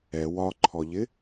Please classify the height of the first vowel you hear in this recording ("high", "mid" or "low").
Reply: mid